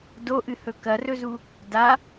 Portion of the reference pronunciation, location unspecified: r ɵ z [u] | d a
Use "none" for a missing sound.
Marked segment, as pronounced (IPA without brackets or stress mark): u